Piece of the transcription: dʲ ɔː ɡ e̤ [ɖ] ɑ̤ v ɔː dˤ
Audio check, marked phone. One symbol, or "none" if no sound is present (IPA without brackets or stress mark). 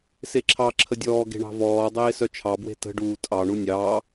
ɳ